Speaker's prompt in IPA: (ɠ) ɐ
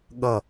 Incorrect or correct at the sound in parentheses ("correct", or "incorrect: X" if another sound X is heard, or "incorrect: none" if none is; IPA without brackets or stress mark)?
correct